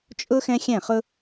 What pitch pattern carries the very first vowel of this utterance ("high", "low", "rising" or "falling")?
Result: high